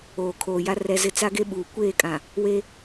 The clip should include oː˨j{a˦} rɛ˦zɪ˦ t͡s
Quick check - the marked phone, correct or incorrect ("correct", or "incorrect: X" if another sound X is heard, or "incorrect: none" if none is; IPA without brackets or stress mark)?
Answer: correct